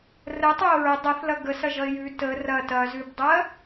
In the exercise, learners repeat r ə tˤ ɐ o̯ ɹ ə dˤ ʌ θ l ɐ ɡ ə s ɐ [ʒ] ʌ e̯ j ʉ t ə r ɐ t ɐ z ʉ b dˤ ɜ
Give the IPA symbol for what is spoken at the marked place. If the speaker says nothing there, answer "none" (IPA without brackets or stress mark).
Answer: ʒ